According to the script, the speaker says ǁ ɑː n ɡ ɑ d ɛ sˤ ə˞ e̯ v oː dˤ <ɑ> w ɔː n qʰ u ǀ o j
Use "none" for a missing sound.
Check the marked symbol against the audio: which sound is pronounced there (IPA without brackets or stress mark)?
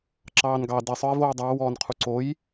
ɑː